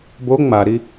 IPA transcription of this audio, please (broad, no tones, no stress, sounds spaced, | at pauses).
b o ŋ͡m a ɾ i